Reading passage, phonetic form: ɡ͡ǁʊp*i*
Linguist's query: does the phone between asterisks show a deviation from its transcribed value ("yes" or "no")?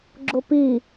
no